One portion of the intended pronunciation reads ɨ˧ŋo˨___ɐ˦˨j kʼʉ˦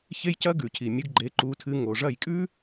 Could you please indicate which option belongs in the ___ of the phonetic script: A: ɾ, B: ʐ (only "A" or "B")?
B